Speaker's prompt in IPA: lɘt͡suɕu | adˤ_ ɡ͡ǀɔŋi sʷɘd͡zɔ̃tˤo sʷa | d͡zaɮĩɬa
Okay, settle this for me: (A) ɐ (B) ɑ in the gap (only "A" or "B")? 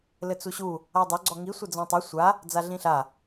A